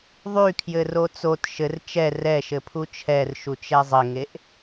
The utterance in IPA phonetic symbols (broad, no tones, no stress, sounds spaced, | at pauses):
ðˤ y kʰ j ɘ r o t͡s o t ʃ ɘ r t͡ʃ ɛ r ɛ ʃ ɘ pʰ u t͡ʃʰ ɛ r ʃ u t͡ʃ ɛ zˤ ɘ ŋ e ʔ